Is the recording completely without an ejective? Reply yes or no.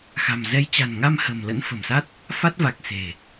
yes